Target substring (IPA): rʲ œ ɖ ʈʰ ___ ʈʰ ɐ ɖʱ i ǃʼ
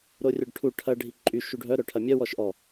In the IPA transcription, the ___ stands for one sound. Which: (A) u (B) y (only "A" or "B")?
A